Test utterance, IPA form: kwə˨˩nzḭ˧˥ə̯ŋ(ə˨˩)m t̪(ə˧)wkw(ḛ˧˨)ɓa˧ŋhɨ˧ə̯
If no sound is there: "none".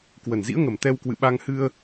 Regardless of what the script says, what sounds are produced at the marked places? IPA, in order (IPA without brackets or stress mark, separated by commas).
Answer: ə˨˩, ɛ˧, ɨ̰˧˨